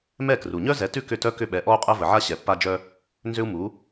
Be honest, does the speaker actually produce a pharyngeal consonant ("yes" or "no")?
yes